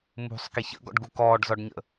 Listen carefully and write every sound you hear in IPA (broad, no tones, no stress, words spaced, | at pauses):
mṳsˤ kiçə̰ɡɔ̰ɖɡu kɔːɖzɔɖɲə̰